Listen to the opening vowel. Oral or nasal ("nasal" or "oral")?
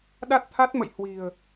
oral